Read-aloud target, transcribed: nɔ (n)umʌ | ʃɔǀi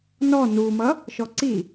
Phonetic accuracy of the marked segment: correct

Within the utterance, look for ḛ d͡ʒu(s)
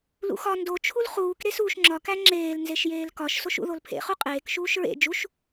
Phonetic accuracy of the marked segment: incorrect: ʃ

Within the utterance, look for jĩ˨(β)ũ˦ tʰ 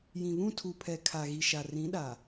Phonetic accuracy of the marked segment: correct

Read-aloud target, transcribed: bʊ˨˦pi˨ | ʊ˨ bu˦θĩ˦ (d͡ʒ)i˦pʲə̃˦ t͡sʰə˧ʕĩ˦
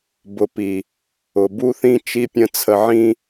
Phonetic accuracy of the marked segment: incorrect: t͡ʃ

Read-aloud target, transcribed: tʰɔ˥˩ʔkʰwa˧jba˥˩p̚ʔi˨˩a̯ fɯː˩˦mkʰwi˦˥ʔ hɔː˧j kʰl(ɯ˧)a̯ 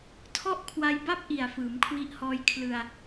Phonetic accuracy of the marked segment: correct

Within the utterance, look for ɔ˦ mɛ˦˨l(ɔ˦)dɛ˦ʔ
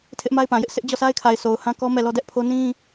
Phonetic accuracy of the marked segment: correct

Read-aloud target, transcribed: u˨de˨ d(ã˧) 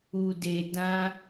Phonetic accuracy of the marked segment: correct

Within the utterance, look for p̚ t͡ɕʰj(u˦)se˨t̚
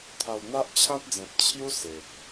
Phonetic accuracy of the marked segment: correct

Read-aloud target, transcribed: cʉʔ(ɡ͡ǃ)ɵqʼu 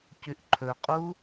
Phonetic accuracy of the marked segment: incorrect: ǃʰ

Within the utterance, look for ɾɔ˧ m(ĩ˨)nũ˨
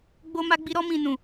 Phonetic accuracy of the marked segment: correct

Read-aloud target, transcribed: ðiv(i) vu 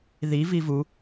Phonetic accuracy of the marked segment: correct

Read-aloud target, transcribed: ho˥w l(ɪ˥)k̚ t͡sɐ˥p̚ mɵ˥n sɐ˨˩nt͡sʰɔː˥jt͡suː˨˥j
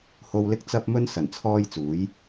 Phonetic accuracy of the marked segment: correct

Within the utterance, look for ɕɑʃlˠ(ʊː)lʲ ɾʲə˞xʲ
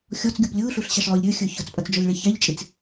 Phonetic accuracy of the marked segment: correct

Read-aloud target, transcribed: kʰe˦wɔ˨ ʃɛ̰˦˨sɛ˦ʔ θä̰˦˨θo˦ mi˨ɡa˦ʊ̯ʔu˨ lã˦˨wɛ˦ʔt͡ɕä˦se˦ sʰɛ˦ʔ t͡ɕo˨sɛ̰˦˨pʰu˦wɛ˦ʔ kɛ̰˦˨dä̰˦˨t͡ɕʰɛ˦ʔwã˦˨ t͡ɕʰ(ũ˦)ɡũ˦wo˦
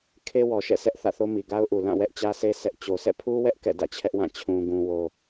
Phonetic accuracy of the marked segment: correct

